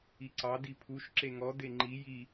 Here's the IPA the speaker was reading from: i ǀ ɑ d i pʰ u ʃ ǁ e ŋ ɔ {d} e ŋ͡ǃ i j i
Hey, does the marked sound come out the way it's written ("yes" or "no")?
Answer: yes